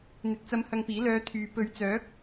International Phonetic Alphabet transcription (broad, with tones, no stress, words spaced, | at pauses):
n̪ɪ˨k̚t͡sɐ˧mhɐ˧ŋpiː˨˥ lœː˧t̪ʰyː˨˧ pɵ˨˧ɥt͡sœː˨˥k̚